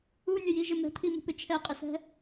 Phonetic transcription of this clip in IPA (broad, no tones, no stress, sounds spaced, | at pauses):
u nʲ ə j i ʒ ɪ m ɛ̤ t̪ʰ i m ṳ p ɪ t͡ʃʰ ɛ qʼ ɪ s ɛ̤